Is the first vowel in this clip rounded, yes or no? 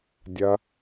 no